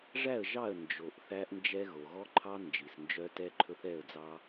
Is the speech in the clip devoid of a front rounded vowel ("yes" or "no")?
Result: no